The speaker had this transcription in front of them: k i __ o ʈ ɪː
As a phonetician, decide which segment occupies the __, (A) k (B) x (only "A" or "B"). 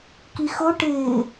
B